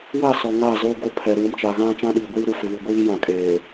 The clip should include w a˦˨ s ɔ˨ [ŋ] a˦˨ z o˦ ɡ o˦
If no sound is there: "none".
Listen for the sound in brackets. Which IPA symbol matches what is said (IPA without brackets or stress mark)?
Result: ŋ